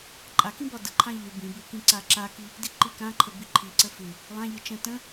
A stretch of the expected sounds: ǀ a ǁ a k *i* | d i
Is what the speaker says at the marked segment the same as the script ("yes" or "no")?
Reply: yes